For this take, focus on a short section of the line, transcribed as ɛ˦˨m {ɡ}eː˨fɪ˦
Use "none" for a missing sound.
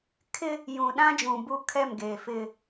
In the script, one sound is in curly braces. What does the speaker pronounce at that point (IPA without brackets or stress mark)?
ɡ